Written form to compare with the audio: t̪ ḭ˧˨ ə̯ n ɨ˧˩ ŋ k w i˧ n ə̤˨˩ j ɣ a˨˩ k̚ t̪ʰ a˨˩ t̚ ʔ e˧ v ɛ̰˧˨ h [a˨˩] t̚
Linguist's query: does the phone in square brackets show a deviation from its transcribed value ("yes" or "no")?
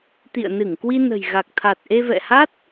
yes